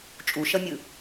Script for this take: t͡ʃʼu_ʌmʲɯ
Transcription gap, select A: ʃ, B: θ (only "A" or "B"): A